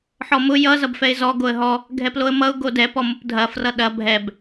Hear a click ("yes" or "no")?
no